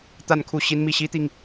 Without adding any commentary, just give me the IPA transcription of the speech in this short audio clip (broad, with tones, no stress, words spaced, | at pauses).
t̪a˥˧nkʰu˥˩ ɕi˥nmi˥˩ ɕi˥t̪i˨ŋ